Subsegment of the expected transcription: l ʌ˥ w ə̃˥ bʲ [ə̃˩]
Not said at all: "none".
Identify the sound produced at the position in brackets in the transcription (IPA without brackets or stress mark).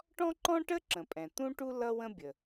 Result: ə˩